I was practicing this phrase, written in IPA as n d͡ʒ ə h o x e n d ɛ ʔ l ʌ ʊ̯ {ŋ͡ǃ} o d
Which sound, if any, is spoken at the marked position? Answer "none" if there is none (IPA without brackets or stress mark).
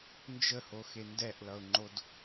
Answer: ŋ͡ǃ